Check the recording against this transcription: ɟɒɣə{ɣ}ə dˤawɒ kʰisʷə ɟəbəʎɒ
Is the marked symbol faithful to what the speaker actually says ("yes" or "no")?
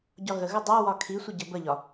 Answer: yes